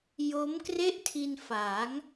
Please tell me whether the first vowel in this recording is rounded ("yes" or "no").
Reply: yes